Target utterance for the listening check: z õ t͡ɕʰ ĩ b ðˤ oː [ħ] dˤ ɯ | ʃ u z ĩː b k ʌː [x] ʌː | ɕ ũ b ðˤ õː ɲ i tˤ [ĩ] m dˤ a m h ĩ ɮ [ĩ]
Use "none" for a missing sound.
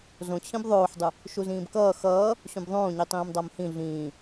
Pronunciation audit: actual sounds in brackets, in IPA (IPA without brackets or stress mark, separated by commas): ħ, x, ĩː, ĩː